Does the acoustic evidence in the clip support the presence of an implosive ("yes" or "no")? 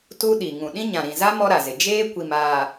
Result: yes